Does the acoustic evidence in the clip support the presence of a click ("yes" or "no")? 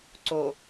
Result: yes